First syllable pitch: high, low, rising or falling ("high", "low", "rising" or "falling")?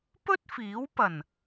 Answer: high